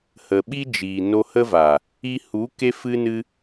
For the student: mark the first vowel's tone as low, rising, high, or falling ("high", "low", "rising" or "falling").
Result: low